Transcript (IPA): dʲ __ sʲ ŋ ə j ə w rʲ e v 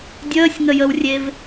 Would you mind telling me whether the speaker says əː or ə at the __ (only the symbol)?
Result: əː